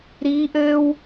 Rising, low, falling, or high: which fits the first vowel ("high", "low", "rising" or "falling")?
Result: rising